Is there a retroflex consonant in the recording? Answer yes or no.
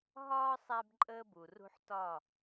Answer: no